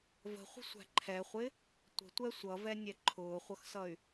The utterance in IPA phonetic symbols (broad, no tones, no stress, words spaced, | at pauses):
və̤χʷə̤sʷæ̤ ǃʰɛχʷɪ | tʷə̤tʷɛ sʷʌvɛnʲɛ ǃʰʊːχʷʌxsʌy̯